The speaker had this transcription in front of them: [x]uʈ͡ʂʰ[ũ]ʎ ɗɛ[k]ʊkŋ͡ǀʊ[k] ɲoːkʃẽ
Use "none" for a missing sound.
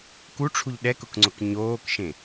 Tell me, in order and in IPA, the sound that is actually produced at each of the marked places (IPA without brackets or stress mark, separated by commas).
k, u, k, k